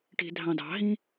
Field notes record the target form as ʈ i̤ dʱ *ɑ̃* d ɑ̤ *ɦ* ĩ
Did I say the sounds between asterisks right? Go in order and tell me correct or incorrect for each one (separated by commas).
correct, correct